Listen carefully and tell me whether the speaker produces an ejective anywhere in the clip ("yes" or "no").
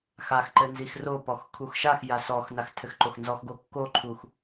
no